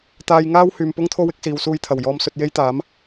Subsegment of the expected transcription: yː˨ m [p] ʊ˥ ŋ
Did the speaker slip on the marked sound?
no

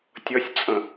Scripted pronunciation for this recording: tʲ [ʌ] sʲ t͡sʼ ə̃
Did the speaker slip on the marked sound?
no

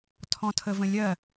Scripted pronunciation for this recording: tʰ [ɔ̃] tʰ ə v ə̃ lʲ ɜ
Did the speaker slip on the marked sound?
no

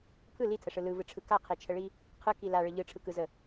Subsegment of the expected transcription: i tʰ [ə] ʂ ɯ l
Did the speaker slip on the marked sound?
no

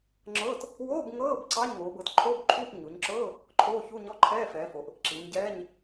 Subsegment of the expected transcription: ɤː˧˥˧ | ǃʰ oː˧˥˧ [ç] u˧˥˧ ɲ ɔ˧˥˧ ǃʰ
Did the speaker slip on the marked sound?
no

